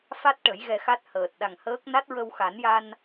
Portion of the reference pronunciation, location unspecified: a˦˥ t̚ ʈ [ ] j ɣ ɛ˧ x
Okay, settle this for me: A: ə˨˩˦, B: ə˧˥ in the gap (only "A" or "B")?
A